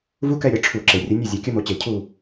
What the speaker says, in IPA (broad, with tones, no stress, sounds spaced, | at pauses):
v u˦ k ɛ˦˨ ɾʲ ɐ˨˦ ʈ͡ʂʰ u˧˩˧ ǁ e˩ rʲ ɘ˨˦ nʲ ɛ˦˨ zʲ a˨˦ kʲ ɐ˦ m o˨˦ t͡ɕ e˧˩˧ cʰ u˦˨